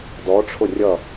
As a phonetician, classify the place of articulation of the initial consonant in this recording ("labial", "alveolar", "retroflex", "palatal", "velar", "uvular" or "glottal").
alveolar